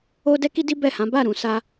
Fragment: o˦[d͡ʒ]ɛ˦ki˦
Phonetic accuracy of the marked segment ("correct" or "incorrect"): incorrect